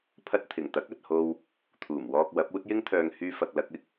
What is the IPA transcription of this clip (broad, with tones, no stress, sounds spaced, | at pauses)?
pʰ ɐ˧ t̚ t̪ʰ ɪ˨˩ ŋ t̪ ɐ˨˥ k̚ ɐ˨ t̚ h o˧ w | t̪ʰ uː˨˩ m w ɔː˧ k̚ w ɐ˨˥ p̚ uː˧ t̚ j ɪ˧ ŋ t̪ʰ œː˨ ŋ h yː˧ f ɐ˨ k̚ l ɐ˧ k̚ ɪ˧ k̚